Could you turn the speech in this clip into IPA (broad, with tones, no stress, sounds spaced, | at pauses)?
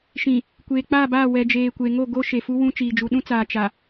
ʃ ĩ˨ | kʷ eː˨ k͡p aː˦˨ b aː˦˨ w ɛ˨ d͡ʒ eː˨ kʷ e˨ ŋ o˦˨ ɡ o˦ ʃ e˨ f u˦ w ũ˦ t͡ʃ iː˨ d͡ʒ u˨ ɗ ũ˦ t͡s aː˨ t͡ʃ a˨